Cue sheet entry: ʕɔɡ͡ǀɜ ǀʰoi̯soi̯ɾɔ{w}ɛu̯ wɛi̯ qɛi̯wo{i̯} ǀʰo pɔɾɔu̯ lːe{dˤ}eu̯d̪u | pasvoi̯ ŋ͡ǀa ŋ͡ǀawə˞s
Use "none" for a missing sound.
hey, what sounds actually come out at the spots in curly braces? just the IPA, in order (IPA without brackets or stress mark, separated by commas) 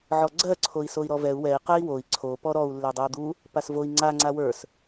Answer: v, i̯, dˤ